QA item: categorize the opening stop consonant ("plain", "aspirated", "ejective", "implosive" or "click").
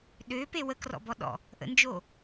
implosive